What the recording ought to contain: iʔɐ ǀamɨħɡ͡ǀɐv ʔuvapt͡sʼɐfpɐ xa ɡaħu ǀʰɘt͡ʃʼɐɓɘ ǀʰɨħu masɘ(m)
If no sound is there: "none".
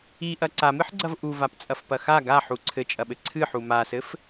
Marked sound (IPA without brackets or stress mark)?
f